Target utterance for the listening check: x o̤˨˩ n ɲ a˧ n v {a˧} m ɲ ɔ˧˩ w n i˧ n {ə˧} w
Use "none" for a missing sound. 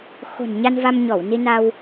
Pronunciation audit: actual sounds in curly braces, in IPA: a˧, a˧

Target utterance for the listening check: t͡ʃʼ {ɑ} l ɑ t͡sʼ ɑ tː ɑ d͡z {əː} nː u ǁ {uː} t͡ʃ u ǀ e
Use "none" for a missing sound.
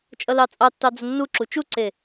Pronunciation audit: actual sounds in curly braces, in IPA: ʌ, ə, u

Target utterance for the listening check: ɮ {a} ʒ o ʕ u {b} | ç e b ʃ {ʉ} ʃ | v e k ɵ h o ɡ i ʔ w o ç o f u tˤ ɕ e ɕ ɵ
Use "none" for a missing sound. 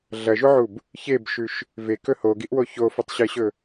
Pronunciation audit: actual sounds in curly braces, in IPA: ɐ, b, ʉ

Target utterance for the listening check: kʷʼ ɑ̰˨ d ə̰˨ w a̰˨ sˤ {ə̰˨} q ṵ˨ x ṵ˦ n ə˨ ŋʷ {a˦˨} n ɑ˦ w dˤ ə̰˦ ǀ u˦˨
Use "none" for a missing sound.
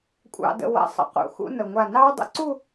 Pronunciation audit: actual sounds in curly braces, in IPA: ə̰˨, a˦˨

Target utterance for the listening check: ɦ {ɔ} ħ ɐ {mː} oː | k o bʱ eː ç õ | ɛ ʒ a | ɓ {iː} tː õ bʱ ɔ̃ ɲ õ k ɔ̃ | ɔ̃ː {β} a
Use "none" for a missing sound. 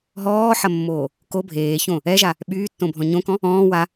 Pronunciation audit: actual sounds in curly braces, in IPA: ɔː, mː, yː, w

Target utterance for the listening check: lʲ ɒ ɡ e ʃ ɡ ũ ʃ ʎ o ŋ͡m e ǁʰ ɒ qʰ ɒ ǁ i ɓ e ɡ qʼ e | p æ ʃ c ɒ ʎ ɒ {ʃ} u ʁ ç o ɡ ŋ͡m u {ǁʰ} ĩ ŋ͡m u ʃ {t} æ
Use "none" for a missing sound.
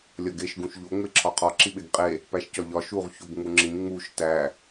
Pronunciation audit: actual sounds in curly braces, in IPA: ʃ, ŋ͡ǁ, t

